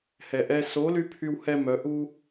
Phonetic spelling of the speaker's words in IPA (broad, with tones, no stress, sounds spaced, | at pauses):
h ɛ˨ ʔ ɛ˧ s o˨˦ l y˧ pʰ y˦ w h ɛ˦ m œ˨˦ ʔ u˦